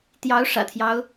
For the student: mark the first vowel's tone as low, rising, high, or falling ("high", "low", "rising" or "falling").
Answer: rising